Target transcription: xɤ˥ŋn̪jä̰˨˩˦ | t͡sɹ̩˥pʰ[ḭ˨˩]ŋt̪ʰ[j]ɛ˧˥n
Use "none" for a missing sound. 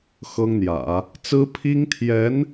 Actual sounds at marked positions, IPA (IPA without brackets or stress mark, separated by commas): i˥, j